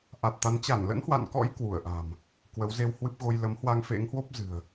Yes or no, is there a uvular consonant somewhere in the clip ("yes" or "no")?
no